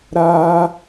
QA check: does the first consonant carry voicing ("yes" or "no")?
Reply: yes